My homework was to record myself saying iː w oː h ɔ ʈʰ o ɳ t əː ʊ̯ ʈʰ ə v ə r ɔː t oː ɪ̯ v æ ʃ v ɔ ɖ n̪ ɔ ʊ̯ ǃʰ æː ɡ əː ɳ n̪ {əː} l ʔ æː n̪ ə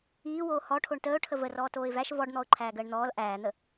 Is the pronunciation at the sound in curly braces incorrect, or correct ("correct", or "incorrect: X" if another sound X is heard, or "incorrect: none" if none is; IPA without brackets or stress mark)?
incorrect: ɔː